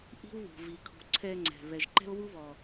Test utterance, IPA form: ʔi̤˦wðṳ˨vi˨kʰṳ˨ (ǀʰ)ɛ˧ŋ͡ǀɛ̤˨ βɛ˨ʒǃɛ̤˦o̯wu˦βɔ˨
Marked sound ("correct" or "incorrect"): correct